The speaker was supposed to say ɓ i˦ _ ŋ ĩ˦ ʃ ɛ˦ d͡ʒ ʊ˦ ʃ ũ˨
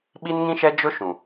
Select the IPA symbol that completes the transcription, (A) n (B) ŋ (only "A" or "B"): A